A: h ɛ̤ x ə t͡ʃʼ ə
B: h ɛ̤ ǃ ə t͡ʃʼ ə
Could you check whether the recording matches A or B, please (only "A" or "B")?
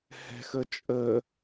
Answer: A